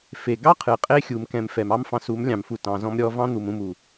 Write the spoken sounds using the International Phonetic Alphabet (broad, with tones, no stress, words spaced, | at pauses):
fe˨ ɡɑ˦ qʰɨ˨qʼe˦ xʲu˨mkɛ̃˨m fɛ˨mɑ˦mfɑ̃˧ su˨˦mlʲɑ̃˨mfu˨ tɑ̃˨zɔ̃˧m ɾʲɔ˨˦vɑ̃˦n̪u˨m ũ˨mu˨